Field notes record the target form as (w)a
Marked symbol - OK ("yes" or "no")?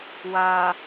yes